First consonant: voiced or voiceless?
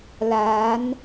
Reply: voiced